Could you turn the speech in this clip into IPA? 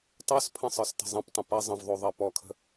tˤospʰə̃ sˤə˞stə̤zˤɐ̃ptˤə̃ pɐ zˤə̃vðˤo ðˤɜpɔkʰə̤

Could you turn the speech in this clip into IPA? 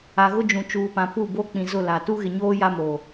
a˨ɣʊ˦d͡ʒũ˨t͡ʃuː˨ pã˨pu˦˨bo˦ k͡pĩ˨ zʊ˦˨la˨ tu˦ɣɪ˨ɲoː˦ ja˦mo˨

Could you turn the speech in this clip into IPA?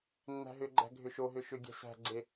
nːæ̤ɦʏɡ͡ǃæ̤ ɡʱʏʃoɦʏ ʃʏɡʲɛ̤ sæ̤ɡ͡ǀe

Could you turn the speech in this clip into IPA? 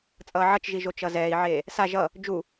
t͡sʼʌːʕʌt͡ʃʒiʒo t͡ʃʌzɛːi̯ʕeː | sa ʒʌ | d͡ʒu

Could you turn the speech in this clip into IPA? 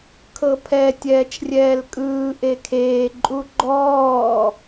kʰɤpʰɛ tʲɛːt͡ʃrʲɛːlkʼɯː ʔekʰeː ǃʼuɡ͡ǃɔː

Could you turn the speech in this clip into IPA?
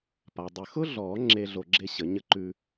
pa˩dˤə˧˩ xʊ˥ɮɔ˨˩˦ ŋ͡ǁe˥ɮo˧ ɡ͡ǁe˥ɕə˨˩˦ɲə˥ ǃʉ˥

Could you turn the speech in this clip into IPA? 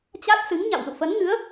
t͡ɕa˦˥t̚sɨ˨˦ŋ ɲa̰˧˨wzṵ˧˨fə˨˦nŋɨ˨˦ə̯

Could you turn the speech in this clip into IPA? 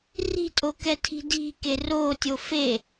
ri̤tʼokɛtʰi̤ di̤ke rotʲo fe

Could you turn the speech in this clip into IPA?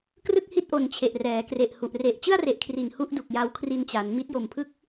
krɯ˥˩k̚hi˥˩t̚ʔo˨˩n t͡ɕʰe˨˩ʔrɛː˩˦kre˨˩ʔ hu˨˩ʔ re˨˩ʔ t͡ɕɯ˥˩a̯re˨˩ʔkʰri˨˩n hu˥˩ʔdu˨˩k̚ja˧w kʰri˧nt͡ɕa˩˦n mi˦˥t̚jo˨˩mpʰɯ˥˩k̚

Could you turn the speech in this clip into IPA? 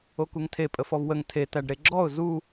okuŋtʰe pʼəfɔvwəŋ tʰe tæɖɾeɡ͡ǁɔʊ̯ zu

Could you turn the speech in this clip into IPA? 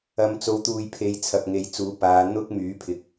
ɐ˨˧mt͡so˨˧wt̪uː˨jpʰe˨˧j t͡sʰɐ˨p̚ŋe˨˧jt͡suː˨˥ paː˨˧ n̪ʊ˥k̚ myː˨˥pʰɪ˨˥k̚

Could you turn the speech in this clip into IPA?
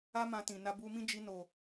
a˦ mã˧tĩ˨na˧ bu˧mĩ˦ d͡ʒi˧no˨

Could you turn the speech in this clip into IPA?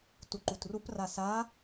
tuǃutrupra sa

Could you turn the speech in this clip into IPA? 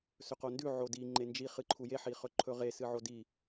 sɵqondʉ ʕodi ŋ͡ǃend͡ʒi χɨǃʰuje ħiχɵǃʰɵʁe sɨʕodi

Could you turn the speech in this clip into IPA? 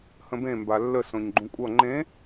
hə̃bẽ mbalːə sõɲɡ͡ǃũkʷʼʌ ŋ͡ǃẽ

